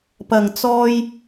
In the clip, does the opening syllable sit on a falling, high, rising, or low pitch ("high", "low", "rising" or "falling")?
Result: low